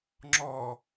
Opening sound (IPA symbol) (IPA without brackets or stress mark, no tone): ŋ͡ǁ